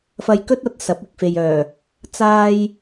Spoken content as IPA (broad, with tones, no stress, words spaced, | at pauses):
fɐ˧jkɵ˥t̚ɐ˨˥t̚ sɐ˨˥p̚ɪ˨k̚fe˨jœː˨˩ | t͡saː˥j